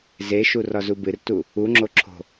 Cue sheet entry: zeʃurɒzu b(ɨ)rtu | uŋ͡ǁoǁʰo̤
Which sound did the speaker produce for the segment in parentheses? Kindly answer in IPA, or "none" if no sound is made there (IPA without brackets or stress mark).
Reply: ɨ